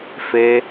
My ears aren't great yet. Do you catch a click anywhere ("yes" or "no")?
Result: no